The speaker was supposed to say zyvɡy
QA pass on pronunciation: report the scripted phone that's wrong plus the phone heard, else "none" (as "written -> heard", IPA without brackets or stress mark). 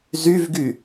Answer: none